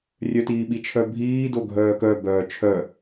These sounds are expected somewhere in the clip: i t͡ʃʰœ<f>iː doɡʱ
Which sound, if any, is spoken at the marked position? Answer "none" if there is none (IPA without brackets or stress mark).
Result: bʱ